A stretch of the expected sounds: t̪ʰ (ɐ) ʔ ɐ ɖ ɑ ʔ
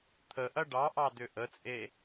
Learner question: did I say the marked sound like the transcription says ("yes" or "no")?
no